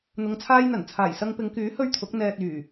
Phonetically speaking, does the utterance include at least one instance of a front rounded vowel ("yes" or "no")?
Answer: yes